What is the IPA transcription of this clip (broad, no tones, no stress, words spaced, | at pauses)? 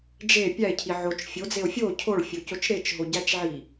d͡ʒe pʲæe̯cʰi ʕot͡ʃ fʲod͡zeo̯ fʲo cʰoɭfʲocot͡ʃ ɾet͡ʃɦoɟæt͡ʃʕi